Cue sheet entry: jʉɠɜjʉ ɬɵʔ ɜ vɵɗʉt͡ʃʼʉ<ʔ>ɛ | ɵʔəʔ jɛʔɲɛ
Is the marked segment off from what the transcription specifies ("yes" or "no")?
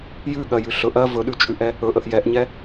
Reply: no